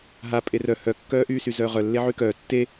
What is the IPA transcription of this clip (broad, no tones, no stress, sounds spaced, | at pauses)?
ɦ a pʼ e r œ h œ kː œː ʔ yː s y z œː ʁ œ lː e ʕ y k œː tː e